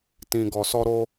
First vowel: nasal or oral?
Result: nasal